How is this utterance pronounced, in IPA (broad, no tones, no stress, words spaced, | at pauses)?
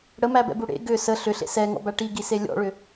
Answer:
ɽəmæbɛ̰bu ɽḛ ɡʏ sə ɬʏɬḛ sɛŋɔ̰bæ ʈiɡise lʲɔ̰ɭʏ